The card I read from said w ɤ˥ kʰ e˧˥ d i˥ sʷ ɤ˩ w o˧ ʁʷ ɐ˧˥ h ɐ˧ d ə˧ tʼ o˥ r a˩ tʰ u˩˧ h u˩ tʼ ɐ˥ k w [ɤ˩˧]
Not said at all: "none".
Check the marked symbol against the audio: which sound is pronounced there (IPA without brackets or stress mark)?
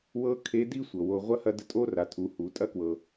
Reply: ɤ˩